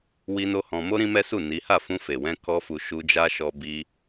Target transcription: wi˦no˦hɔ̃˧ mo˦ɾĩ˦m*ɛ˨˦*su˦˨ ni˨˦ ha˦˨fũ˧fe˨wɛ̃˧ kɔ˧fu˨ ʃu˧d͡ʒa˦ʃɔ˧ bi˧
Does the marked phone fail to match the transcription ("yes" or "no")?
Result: yes